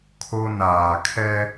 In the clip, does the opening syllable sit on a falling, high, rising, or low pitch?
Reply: high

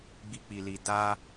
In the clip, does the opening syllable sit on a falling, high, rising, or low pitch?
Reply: high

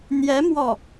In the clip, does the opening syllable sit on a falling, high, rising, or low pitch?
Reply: rising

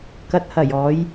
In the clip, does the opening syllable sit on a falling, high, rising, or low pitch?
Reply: low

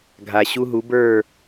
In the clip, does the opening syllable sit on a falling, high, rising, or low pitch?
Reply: low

